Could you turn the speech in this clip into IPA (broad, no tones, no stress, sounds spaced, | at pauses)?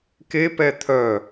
k e p ɛ t̪ʰ œ